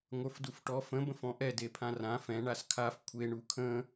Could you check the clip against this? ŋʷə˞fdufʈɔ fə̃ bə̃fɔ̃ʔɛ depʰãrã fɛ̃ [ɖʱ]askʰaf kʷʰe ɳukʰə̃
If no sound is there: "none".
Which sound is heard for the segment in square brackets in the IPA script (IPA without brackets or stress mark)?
ɳ